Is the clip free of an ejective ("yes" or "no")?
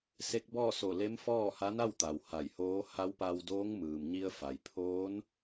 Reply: yes